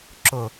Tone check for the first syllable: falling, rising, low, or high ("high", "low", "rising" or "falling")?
low